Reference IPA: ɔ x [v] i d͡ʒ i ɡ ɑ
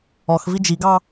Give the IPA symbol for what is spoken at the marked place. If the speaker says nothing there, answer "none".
v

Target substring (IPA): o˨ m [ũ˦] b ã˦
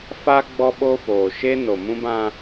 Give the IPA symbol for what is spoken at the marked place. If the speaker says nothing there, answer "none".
ũ˦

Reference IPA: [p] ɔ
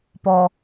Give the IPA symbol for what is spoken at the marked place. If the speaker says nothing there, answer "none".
p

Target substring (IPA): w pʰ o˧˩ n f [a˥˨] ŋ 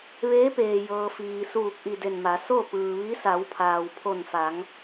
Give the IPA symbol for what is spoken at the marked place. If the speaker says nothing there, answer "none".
a˩˧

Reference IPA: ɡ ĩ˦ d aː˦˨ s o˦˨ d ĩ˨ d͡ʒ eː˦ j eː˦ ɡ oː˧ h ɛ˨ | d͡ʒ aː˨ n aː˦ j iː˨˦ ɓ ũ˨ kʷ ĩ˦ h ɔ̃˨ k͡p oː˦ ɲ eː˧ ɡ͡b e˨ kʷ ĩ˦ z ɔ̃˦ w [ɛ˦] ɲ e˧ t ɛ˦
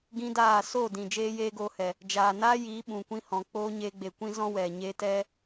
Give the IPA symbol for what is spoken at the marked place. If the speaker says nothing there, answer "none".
ɛ˨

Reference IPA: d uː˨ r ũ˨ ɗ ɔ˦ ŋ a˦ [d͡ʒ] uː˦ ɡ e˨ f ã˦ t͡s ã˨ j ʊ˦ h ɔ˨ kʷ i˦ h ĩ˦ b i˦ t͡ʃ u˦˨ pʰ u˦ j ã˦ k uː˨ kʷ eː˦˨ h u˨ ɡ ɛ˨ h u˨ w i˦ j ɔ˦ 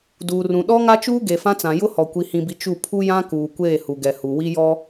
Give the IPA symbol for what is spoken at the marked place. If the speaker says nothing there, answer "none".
t͡ʃ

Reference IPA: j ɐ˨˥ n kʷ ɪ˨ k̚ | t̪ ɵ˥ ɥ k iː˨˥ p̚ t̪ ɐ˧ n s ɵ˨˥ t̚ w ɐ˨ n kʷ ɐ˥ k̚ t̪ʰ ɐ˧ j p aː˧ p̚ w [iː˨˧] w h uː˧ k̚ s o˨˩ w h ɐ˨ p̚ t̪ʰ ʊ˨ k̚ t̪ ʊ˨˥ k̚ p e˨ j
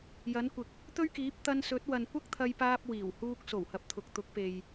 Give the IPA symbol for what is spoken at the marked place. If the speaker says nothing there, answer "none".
iː˨˩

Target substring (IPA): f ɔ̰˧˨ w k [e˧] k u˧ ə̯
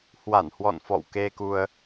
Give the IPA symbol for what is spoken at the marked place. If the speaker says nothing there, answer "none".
e˧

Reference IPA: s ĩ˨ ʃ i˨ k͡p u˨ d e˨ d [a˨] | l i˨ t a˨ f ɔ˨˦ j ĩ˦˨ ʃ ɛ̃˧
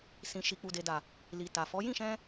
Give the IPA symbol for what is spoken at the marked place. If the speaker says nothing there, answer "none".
a˨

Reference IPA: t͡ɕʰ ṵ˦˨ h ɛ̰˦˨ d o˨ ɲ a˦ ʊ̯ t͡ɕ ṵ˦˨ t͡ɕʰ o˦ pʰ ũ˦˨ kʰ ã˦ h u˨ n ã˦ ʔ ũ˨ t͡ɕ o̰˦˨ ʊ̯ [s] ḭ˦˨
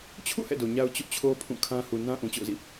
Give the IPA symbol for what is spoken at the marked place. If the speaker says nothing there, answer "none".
z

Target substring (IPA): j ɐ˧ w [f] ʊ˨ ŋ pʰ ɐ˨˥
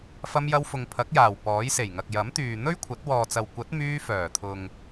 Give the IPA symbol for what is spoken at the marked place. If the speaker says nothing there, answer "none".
f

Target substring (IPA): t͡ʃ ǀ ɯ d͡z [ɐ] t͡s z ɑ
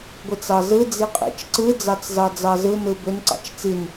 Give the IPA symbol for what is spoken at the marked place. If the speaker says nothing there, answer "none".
ɑ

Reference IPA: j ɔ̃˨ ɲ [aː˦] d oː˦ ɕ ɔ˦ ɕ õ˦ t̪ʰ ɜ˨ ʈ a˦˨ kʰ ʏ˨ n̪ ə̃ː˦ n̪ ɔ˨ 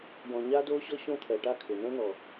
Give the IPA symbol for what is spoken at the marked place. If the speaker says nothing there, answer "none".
aː˦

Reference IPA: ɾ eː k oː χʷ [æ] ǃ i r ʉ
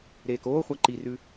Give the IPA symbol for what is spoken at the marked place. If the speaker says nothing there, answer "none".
æ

